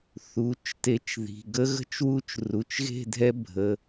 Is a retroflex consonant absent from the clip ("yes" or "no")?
yes